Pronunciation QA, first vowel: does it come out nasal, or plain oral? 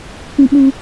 nasal